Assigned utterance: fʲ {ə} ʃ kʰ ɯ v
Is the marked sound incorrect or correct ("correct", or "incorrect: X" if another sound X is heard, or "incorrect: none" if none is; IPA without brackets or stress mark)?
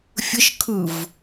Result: correct